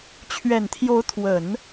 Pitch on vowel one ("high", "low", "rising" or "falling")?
low